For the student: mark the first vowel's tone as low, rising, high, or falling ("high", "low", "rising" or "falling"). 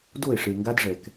falling